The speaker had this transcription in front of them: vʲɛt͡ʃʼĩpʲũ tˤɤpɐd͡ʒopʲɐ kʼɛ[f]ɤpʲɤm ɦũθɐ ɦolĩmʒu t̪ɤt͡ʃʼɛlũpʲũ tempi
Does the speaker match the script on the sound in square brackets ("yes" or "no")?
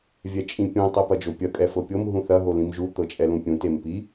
yes